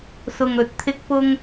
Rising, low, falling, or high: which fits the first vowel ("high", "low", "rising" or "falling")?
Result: low